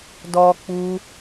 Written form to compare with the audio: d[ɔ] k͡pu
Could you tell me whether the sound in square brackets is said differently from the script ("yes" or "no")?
no